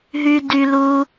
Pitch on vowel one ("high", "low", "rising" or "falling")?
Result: high